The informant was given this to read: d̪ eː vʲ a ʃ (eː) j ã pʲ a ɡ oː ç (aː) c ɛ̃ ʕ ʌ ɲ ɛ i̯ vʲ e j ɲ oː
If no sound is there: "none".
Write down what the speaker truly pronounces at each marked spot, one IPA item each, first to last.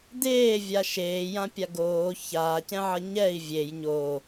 eː, aː

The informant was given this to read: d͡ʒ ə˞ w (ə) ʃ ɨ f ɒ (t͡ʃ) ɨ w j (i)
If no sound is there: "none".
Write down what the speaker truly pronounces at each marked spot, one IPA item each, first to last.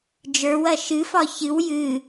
ɐ, ç, ɨ

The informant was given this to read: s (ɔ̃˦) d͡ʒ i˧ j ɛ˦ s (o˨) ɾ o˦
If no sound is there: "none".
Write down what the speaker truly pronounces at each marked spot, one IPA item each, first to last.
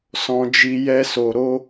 ɔ̃˧, o˧

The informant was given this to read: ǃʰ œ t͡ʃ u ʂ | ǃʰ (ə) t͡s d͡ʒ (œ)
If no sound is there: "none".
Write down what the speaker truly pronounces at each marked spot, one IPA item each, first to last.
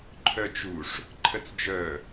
ə, œ

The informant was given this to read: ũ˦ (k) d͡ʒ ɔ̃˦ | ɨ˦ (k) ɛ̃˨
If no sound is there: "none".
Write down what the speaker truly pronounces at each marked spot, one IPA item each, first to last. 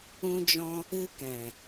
none, k

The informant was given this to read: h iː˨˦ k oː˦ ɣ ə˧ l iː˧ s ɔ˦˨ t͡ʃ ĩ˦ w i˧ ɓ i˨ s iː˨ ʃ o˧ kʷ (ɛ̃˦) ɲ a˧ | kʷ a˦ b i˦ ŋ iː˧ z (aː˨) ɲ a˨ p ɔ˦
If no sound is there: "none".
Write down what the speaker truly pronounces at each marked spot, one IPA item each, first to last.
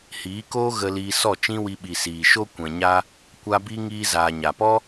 ɛ̃˨, aː˨

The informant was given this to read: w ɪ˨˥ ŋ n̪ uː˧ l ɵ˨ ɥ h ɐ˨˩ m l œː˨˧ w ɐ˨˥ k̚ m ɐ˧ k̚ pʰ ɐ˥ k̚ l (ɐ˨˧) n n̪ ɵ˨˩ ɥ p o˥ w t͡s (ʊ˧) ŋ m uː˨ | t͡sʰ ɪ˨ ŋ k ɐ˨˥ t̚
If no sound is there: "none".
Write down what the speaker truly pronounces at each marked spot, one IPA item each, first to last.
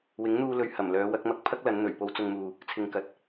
ɐ˨˧, ʊ˧

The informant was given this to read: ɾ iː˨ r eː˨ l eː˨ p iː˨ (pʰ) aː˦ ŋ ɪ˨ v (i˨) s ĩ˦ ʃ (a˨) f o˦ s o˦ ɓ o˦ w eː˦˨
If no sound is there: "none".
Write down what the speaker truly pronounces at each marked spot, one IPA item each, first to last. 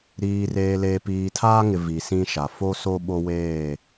tʰ, i˨, a˨

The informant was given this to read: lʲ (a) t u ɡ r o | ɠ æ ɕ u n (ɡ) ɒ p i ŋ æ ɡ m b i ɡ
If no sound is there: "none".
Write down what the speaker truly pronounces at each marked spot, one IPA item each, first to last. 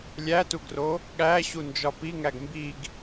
æ, d͡ʒ

